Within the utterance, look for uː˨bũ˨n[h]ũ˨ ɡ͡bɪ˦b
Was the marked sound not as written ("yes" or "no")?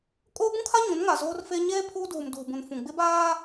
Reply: yes